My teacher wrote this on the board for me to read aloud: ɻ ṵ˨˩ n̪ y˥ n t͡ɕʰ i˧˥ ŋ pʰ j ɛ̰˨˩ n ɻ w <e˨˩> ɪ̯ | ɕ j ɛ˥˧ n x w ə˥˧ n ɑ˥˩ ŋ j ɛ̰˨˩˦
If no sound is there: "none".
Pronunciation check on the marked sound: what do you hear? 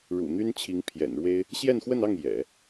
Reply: e˥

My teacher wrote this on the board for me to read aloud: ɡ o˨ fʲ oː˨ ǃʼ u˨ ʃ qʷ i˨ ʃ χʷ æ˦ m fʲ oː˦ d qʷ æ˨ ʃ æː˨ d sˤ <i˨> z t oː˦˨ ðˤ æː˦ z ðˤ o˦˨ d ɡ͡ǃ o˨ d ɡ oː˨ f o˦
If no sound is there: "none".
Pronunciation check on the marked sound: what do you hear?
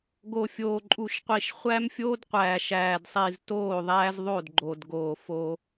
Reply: i˨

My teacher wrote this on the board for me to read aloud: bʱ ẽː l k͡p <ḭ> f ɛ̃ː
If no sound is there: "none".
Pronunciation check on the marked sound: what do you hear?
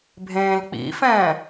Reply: ḭ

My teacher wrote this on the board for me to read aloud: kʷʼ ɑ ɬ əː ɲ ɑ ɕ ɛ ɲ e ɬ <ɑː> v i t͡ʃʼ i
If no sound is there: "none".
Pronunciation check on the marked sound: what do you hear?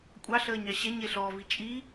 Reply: ɔː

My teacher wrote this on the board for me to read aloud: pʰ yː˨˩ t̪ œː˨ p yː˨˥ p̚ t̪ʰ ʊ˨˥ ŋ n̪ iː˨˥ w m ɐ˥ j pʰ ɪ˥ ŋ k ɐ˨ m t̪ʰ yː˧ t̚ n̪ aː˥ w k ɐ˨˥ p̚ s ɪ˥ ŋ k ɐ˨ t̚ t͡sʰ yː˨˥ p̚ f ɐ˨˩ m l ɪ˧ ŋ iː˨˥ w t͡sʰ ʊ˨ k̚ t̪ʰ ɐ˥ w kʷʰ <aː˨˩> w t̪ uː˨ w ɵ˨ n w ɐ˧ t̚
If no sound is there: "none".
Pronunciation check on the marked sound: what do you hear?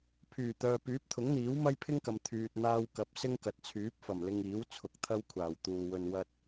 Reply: aː˨˩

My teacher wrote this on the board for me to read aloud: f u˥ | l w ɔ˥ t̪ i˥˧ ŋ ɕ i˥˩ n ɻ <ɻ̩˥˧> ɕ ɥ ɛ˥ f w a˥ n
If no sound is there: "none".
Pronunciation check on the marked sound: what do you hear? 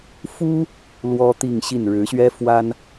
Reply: ɻ̩˧˥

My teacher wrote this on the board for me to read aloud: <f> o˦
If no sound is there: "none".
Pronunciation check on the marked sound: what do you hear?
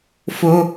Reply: f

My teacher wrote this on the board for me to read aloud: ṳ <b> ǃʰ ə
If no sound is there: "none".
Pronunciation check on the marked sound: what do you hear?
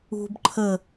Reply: b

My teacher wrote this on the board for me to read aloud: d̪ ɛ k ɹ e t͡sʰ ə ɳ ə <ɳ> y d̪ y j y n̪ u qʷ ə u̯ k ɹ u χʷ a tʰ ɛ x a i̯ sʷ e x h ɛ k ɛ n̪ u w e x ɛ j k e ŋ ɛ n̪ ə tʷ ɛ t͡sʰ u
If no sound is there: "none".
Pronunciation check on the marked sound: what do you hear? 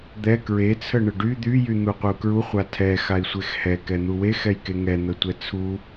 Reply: ɖ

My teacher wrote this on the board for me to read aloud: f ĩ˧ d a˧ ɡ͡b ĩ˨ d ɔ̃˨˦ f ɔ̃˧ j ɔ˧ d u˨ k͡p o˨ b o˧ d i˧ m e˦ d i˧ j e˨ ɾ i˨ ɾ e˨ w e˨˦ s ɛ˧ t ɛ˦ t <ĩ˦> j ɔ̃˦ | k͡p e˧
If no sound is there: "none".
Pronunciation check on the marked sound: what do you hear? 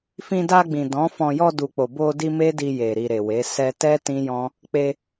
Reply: ĩ˦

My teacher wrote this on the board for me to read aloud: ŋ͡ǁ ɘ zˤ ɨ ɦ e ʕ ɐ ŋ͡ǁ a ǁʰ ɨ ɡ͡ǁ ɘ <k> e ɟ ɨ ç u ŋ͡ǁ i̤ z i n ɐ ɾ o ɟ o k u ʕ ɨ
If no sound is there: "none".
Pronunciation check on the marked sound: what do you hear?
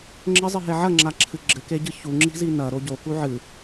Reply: k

